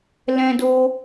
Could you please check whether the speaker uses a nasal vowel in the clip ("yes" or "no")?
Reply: yes